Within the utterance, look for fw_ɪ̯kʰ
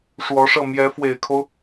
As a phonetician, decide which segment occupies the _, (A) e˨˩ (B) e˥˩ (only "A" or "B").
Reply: A